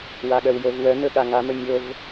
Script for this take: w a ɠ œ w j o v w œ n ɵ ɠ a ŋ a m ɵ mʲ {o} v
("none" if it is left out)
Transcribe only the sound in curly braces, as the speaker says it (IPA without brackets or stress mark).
o